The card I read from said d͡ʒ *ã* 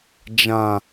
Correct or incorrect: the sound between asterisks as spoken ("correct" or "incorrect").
correct